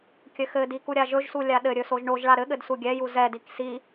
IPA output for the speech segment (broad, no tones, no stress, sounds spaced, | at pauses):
kʲ ɘ x ɘ d i k u ɾʲ a ʒ ɵ ʒ s u lʲ a ɗ ɘ ɾʲ ɵ s o ʒ ɳ o ʒ ɭ a ɾ ɘ ɠ ɘ d s u ɡʲ ɛ j u z ɛ d i k s i